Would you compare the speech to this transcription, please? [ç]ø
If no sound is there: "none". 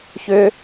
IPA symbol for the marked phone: ç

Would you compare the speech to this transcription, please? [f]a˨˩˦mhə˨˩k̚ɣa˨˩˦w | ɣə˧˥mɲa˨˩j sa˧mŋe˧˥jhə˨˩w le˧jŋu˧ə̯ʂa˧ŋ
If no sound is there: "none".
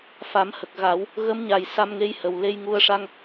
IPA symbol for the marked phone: f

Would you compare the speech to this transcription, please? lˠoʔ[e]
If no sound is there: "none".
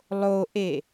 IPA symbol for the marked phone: e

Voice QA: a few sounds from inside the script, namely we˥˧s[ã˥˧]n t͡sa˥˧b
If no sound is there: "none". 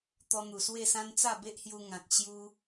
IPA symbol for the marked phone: ã˦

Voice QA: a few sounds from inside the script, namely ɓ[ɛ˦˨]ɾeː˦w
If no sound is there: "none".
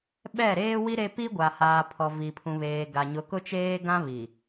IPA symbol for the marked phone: ɛ˦˨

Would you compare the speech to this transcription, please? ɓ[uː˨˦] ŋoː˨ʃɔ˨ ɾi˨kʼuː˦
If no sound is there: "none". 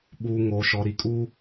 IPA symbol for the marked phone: uː˨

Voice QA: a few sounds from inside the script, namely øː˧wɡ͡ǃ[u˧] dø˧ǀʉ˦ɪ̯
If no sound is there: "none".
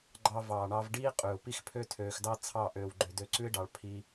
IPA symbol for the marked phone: ø˧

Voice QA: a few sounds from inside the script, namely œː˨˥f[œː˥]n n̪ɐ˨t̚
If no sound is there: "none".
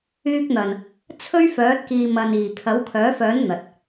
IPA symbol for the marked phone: œː˨˥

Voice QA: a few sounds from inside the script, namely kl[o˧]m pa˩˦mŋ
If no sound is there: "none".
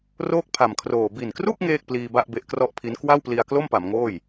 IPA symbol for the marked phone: o˥˩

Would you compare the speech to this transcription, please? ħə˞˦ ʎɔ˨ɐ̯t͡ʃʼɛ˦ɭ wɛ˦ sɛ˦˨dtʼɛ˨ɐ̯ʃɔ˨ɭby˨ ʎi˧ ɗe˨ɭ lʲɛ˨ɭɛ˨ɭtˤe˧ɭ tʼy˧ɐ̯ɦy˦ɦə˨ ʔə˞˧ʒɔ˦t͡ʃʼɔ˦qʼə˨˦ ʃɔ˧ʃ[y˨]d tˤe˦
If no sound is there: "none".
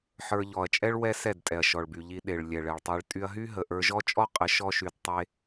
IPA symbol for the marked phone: y˨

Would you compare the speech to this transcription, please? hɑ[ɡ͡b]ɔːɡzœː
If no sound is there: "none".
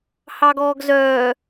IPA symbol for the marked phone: ɡ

